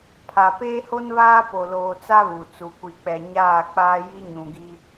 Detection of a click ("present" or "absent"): absent